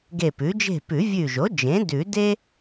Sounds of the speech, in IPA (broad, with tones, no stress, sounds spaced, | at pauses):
ɡ e˧˩ p ʉ˩˥ d͡ʒ e̤˥˨ p ʉ˨˩˦ vʲ ʉ˧˩ ʒ o˩˥ d͡ʒ ẽ˩˥ d ʉ˨˩˦ d e˥